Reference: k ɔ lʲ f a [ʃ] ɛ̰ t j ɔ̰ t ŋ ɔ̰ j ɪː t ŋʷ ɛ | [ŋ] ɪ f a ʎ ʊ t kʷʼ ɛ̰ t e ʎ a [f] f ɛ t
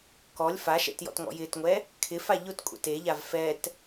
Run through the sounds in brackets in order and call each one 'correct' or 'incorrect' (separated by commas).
correct, incorrect, incorrect